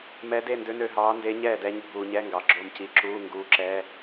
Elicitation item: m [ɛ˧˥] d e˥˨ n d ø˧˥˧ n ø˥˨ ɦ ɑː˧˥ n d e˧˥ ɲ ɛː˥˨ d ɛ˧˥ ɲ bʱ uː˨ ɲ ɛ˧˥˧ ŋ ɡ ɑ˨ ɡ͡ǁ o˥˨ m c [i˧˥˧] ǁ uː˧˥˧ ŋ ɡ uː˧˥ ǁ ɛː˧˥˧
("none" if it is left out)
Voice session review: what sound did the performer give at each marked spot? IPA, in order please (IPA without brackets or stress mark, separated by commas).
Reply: ɛ˧˥, i˧˥˧